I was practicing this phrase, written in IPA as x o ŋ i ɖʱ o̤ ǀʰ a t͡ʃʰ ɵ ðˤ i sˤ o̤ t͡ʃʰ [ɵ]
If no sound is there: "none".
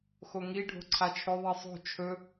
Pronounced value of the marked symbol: ɵ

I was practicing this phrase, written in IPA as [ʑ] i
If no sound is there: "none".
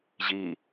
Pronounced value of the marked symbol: ʑ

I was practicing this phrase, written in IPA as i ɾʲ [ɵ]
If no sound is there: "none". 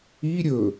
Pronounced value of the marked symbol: ɵ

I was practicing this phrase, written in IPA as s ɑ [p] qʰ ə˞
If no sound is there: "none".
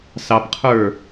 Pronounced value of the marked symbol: p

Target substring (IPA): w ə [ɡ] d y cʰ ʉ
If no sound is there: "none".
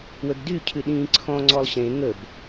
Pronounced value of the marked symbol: ɡ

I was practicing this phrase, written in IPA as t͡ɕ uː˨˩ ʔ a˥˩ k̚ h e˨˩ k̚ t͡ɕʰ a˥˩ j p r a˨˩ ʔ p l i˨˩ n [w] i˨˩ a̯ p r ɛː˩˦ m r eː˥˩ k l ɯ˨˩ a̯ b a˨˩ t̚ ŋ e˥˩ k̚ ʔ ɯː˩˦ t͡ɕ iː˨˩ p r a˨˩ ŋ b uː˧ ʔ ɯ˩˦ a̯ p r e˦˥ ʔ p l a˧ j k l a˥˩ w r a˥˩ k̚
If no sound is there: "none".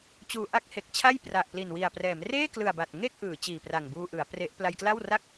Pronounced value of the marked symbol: w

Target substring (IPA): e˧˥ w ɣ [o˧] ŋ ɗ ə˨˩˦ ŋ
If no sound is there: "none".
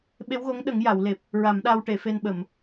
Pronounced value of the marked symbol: o˧˥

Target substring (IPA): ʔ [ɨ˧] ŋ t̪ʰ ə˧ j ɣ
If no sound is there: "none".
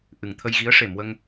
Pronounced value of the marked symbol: ɨ˨˩˨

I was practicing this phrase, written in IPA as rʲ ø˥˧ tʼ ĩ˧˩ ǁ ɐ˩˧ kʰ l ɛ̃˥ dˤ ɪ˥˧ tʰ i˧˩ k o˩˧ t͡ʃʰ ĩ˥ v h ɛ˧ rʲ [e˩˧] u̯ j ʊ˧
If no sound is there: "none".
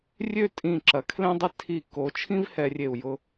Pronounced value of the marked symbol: e˧˩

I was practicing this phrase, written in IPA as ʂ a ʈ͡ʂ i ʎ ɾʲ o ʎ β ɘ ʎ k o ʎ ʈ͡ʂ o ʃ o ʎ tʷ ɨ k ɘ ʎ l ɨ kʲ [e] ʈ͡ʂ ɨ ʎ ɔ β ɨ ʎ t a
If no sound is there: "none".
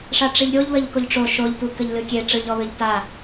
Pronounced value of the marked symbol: e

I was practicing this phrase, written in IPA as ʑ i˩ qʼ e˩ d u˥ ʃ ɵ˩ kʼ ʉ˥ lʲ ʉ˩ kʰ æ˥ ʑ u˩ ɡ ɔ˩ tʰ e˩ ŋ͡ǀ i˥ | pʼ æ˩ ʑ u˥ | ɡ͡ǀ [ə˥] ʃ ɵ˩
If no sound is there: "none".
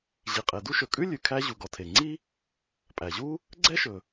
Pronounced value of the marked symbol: ɛ˥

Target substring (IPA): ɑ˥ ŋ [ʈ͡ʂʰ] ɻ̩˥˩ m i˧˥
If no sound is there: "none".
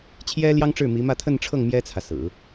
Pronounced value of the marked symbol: ʈ͡ʂ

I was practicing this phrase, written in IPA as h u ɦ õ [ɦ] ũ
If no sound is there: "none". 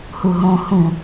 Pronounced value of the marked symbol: h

